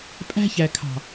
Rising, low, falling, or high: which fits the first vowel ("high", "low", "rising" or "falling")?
high